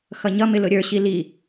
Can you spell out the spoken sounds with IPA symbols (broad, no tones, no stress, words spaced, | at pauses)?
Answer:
xʌɲʌmɪ lʊɾʲə˞ɕi li